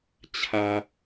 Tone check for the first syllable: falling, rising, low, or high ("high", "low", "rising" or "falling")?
low